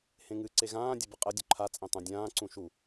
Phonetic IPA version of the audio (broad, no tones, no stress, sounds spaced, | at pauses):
h ẽ ŋ ɨ ǀ e ɣ ãː dʲ ə b ə qʼ ɐ dʲ u ǃʰ a t͡sʼ ẽ tˤ ũ dʲ ãː ǀ ũ ʃ u